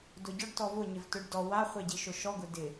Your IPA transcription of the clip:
dʊɟɔɖ tɔvʊ ɲɪvtʊɖdɔ waχʷe ɟiʃʊʃɔɡʊ dɪ

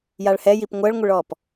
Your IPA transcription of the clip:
jaɭhɛjip ŋʷɜɭŋʷəɭɔːp

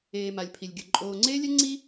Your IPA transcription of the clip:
eː˨ma˨lʲ pʰi˨lʲɡʲɯ˨ ǃʼoː˨ŋ͡ǀeː˦lʲɛ˦ ŋ͡ǀi˦

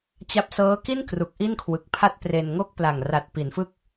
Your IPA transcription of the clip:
t͡ɕa˥˩p̚ sɤː˦˥ki˥˩nkru˨˩k̚ ʔi˥˩nkʰwɯ˨˩k̚pʰa˥˩t̚ pre˧n ŋo˥˩k̚pla˨˩ŋra˨˩t̚ pi˩˦nfɯ˥˩k̚

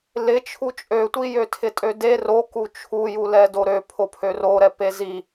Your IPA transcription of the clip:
lɪt͡ʃʰu t͡ʃʼøtʷijø tʰɪtʼøde roku t͡ʃʰujulɛdo ɾøpʰopʰø roɾɛ pezi

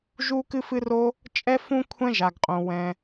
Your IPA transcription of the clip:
ʒu˥ kɨ˥fɨ˥ro˥ | t͡ʃʼɛ˥fũ˥ kʷʰɛ̃˥ʒa˩ɡqʼõ˩ wɛ̃˩

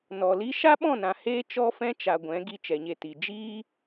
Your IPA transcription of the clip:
nɔ˨li˦ ʃa˦ɓɔ̃˦˨nã˨ heː˦t͡ʃɔ˦fɛ̃˦t͡ʃa˨ ɡʷɛ̃˨˦ ɡi˧t͡ʃɛ˨ɲe˧ti˨ d͡ʒiː˦

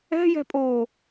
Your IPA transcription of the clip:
ɛ̤jɛ̤pʼoː

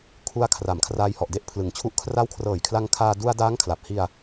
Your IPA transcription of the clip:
kʰu˧a̯kʰra˩˦mkʰraː˧j hɔ˨˩ʔde˥˩ʔpʰlɯ˩˦ŋt͡ɕʰu˦˥ʔ kʰra˦˥wkʰrɤː˨˩jkʰla˧ŋkʰaː˧ du˧a̯ daː˦˥ŋkʰla˨˩p̚hi˧a̯

